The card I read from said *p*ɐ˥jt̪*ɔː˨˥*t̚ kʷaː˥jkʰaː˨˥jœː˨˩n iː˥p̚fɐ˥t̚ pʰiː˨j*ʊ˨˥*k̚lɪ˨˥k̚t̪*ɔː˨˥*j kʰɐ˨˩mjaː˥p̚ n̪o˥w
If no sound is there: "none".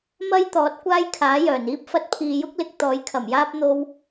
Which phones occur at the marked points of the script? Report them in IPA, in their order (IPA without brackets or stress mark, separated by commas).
m, ɔː˨˥, ʊ˥, ɔː˨˥